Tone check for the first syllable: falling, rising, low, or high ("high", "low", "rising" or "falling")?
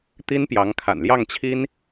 high